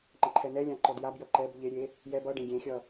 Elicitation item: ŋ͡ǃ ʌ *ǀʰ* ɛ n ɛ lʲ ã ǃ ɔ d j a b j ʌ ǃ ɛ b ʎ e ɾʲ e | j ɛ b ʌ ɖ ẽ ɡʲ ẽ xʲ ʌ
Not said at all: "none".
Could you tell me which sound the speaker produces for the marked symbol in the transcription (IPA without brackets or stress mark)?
ǃʰ